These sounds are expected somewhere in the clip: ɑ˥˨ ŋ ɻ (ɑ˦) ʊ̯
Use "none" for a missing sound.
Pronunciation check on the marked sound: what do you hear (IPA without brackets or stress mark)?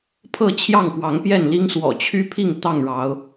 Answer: ɑ˨˦